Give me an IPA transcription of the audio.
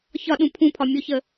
ç ɒ ɗ ũ pʰ ũ pʰ ɒ mʲ o ç ə

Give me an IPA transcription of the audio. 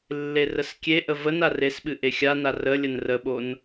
lː e r ə s kʲ e ʔ ə v ə n a r e s ɓ ɨ ʔ e xʲ a n a r ə lʲ ə n r ə ɓ o n

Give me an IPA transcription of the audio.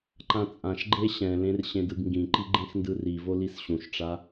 ǃ ã t͡sʼ ã ʃ ɡ͡ǃ e ɕ ɛ̃ l ẽ r ɕ ẽ d ɯ ɡ ŋ ɡ ĩ ǃ i ɡ͡ǃ ẽ x n d ɯ r i v o l i s ɕ ũ ʃ ʈ͡ʂ a

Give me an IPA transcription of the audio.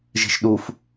ʒ i̤ ʃ ɗ u f

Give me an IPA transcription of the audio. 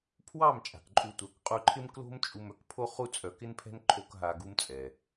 pʰ w ɑ˦˨ m t͡ʃʼ a̤˨ k ǃʼ u˧ tʷ œ˨˦ k qʼ u˧ ǃʰ ɪ˦ m k l o̤˦ m t͡ʃʼ u˧ m œ˧ k pʰ o˦ χ u˧ t͡sʼ œ˨ k ɪ˦ n pʰ ɛ̤˦ n ǃʰ o˦ k ɦ a˧ ɡ u˦ m t͡sʼ ɛ˨

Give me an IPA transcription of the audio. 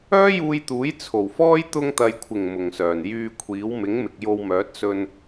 œː˥ j uː˧ j t̪ uː˨˥ j t͡sʰ o˨˩ w f ɔː˥ j t̪ ʊ˧ ŋ t̪ ɐ˨ j kʷʰ ɪ˨˩ ŋ m ʊ˨˩ ŋ s œː˨˩ n j yː˧ kʷʰ iː˨˥ w m ɪ˨˥ ŋ m ɪ˨ k̚ j o˧ w m œː˨˥ t̚ s ɵ˧ n

